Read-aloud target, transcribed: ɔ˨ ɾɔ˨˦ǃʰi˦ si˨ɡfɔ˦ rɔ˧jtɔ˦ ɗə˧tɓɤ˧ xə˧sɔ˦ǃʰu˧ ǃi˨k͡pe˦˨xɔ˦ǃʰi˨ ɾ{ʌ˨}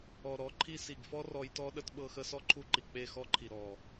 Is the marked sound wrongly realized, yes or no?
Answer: yes